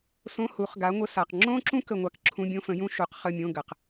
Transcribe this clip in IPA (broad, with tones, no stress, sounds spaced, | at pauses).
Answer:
s õ˧˥˧ h u˨˩˦ χ ɡ a˨˥ ŋʷ ə˧˥˧ s a˨ q ŋ͡ǁ õ˥ ǁ ũ˥ k ə˥˨ ŋʷ a˥ k ǁʰ ũ˧˥˧ bʲ õ˥ f ə̃˨˥ j ũ˥ ʃ u˨˥ q χ ə˧˥˧ mʲ õ˧˥˧ ɡ ə˨ q